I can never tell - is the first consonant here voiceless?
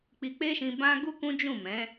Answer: yes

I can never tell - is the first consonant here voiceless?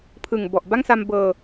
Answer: yes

